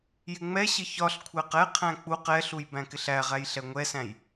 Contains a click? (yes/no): no